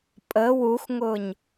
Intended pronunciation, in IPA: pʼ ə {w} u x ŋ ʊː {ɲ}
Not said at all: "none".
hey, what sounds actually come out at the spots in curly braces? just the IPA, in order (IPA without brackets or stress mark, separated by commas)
w, ɲ